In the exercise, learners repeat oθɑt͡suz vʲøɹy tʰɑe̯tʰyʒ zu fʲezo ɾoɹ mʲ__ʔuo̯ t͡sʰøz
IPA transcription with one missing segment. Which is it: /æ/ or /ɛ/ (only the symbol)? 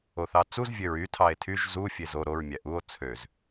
æ